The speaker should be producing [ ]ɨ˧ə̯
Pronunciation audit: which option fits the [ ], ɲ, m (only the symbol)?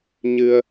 ɲ